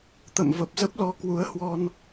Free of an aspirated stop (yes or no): yes